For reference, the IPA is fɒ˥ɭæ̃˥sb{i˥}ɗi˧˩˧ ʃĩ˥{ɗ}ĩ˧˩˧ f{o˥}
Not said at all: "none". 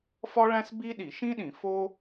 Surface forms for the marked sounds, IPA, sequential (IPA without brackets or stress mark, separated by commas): i˥, ɗ, o˥